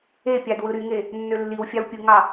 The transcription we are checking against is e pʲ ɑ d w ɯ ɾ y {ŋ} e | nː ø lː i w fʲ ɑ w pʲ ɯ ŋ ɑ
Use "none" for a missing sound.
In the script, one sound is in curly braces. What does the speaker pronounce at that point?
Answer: ŋ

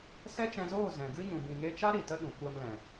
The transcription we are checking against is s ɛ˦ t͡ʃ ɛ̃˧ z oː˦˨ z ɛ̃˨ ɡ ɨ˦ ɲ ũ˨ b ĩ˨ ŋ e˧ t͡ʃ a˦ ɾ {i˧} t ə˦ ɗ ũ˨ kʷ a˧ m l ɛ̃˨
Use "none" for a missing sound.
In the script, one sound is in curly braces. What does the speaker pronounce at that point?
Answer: i˨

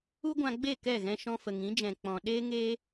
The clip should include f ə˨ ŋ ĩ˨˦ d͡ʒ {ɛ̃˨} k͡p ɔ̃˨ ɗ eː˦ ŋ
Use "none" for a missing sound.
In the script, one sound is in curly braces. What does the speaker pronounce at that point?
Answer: ɛ̃˨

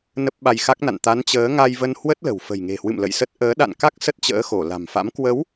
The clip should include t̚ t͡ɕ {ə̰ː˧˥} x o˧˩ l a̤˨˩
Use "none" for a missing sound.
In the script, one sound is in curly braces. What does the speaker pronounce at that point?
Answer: ə̰ː˧˥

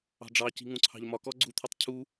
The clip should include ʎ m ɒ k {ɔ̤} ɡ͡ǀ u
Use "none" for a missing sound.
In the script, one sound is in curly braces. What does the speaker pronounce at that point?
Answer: ɔ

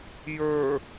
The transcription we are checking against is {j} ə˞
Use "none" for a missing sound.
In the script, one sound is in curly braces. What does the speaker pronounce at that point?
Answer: j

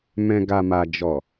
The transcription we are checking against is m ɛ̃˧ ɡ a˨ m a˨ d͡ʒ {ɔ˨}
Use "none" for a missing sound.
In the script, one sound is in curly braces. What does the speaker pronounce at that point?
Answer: ɔ˨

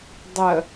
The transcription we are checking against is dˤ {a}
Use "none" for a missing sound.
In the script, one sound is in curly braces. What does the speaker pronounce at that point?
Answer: ə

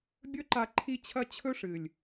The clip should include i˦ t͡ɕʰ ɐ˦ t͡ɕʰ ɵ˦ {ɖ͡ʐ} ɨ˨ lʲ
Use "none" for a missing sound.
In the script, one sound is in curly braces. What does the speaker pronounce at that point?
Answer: ʂ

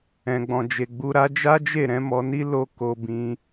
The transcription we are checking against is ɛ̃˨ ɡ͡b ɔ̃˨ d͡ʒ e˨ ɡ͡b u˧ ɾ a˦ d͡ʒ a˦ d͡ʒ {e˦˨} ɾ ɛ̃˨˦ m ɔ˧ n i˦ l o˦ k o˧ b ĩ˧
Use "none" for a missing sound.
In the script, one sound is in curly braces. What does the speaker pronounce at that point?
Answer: e˦˨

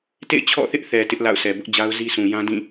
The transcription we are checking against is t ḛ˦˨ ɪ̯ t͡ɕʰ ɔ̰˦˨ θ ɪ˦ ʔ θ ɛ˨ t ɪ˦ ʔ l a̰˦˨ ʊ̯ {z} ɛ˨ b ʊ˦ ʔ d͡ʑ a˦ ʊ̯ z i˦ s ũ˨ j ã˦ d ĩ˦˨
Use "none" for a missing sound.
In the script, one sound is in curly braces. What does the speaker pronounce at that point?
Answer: s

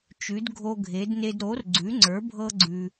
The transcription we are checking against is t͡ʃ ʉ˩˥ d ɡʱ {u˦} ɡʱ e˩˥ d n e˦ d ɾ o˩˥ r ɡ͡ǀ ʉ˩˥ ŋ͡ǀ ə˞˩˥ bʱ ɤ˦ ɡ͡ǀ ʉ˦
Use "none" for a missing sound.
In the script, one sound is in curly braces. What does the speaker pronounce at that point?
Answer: o˦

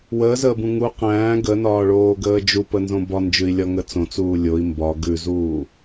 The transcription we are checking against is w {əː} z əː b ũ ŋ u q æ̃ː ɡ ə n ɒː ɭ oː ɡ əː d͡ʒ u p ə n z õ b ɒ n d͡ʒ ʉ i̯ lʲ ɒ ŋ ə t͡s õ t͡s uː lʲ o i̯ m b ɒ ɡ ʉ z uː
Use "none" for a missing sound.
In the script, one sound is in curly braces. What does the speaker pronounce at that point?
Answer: əː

